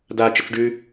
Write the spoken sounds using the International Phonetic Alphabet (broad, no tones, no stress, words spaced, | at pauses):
da t͡ʃət͡sɖʉ